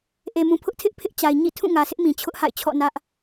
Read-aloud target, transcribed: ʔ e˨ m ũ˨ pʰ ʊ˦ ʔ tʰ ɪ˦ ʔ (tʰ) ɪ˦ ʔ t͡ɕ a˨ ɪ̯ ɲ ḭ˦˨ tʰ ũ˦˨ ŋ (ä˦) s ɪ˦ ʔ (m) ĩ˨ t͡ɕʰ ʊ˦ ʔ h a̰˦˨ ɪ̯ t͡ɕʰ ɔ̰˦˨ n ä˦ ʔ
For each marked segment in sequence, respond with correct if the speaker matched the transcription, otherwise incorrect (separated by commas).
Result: incorrect, incorrect, correct